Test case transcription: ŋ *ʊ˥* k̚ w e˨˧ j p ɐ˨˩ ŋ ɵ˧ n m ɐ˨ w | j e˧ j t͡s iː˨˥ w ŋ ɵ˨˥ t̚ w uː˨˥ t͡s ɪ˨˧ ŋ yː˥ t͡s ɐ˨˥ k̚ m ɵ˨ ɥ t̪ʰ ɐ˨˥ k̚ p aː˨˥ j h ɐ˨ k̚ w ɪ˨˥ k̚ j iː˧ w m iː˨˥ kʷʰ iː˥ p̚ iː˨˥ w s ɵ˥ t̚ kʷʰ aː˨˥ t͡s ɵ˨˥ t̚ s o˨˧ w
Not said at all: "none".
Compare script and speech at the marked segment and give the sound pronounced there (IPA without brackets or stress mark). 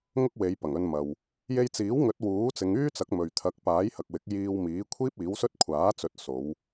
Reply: ʊ˥